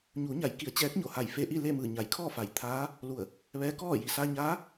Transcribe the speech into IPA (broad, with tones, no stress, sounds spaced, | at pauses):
ɲ uː˩˧ ɲ a˩˧ j k i˩˧ ə̯ t͡ɕ ɛː˧˥ k̚ ɲ o˧˩ h a˧˩ j f e˧ ʔ i˥˨ l e˥˨ m ɯː˧˩ ɲ a˩ j kʰ ɔː˥˨ f a˩˧ j t̪ʰ aː˧˥ | l u˧˩ ə̯ | ʋ ɛː˧˥ k ɔː˥˨ j i˩ s aː˧ ɲ aː˧˥